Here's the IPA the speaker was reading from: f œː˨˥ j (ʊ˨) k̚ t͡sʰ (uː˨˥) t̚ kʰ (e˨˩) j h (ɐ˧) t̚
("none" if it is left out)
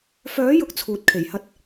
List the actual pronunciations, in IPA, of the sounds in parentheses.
ʊ˨, uː˨, e˨˩, ɐ˥

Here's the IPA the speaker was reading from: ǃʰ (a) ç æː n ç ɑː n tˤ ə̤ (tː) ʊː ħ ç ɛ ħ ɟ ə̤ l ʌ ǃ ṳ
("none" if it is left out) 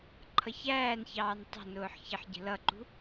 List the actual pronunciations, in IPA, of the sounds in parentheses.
ʌ, n

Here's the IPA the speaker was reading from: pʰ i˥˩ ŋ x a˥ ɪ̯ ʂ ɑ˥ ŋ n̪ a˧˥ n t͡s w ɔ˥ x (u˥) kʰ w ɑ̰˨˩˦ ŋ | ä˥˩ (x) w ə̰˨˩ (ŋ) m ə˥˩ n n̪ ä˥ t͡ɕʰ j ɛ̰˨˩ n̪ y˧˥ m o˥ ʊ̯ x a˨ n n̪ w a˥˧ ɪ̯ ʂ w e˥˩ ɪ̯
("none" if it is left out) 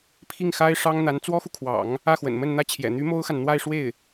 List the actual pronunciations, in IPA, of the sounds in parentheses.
u˨, x, n

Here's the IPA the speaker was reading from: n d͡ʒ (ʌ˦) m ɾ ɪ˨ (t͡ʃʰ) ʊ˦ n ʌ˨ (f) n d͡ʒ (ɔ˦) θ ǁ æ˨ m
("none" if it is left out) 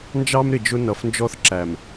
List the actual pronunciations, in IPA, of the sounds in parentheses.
ɑ˦, d͡ʒ, f, ɔ˦

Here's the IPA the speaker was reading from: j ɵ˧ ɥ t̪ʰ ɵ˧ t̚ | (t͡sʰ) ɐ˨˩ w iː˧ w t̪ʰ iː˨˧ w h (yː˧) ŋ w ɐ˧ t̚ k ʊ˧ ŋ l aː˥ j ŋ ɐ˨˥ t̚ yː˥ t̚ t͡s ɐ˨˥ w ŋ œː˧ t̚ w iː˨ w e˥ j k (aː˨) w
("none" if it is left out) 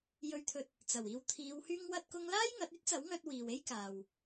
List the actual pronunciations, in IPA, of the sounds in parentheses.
t͡s, yː˧, aː˨

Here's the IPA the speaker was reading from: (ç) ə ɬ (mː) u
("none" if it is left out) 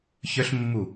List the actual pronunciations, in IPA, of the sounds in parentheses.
ç, mː

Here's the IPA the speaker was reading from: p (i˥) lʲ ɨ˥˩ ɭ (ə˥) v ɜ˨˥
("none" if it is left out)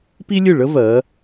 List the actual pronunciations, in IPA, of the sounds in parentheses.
i˥, ə˥

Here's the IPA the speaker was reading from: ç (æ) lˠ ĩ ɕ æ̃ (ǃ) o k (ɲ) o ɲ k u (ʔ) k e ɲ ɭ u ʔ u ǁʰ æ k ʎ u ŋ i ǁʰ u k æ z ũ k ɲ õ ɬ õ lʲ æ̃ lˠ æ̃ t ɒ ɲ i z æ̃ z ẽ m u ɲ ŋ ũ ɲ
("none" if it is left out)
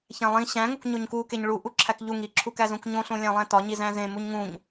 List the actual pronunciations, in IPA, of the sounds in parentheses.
æ̃, ŋ, ɲ, none

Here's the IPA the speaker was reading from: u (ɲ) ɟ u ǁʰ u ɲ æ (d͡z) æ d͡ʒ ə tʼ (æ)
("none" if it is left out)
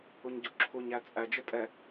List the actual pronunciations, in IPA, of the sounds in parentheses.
ɲ, t͡sʼ, ɛ

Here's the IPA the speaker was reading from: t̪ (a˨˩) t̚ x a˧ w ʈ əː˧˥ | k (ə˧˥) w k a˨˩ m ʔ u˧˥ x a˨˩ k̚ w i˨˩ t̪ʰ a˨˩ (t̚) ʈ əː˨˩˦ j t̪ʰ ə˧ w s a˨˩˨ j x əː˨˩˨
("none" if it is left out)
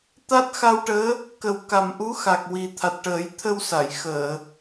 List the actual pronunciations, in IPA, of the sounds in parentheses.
a˦˥, ə˨˩˦, t̚

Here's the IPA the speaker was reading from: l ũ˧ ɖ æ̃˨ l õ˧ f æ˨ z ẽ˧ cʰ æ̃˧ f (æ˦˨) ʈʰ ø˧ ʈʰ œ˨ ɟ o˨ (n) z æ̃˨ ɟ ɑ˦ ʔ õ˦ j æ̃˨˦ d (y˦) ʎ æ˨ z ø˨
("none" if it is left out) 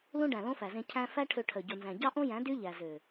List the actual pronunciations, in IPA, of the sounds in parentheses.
æ˦, n, y˦

